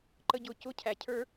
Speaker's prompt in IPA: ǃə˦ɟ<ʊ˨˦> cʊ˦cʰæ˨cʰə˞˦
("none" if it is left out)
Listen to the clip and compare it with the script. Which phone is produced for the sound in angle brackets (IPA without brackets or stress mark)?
ʊ˨˦